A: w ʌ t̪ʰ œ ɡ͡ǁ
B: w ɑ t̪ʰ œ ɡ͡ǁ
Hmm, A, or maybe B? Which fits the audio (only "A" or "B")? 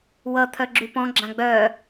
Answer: A